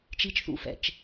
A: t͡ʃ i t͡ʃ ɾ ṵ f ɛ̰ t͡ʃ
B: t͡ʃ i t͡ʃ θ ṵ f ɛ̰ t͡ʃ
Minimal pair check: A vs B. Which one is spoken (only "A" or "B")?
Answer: B